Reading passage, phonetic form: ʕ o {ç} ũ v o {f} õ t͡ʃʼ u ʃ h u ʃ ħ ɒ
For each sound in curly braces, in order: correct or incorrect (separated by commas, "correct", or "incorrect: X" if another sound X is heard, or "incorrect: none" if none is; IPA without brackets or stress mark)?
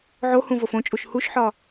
incorrect: h, correct